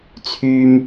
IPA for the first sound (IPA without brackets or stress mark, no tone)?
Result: t͡sʰ